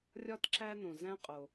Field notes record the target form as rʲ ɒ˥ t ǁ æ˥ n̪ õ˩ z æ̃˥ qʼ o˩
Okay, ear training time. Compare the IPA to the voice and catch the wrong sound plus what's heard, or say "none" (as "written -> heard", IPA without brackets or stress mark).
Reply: none